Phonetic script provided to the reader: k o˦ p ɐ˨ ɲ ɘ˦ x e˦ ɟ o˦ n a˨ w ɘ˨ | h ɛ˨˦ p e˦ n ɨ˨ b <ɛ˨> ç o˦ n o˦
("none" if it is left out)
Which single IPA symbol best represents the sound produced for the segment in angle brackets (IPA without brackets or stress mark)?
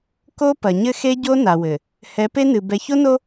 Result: ɛ˨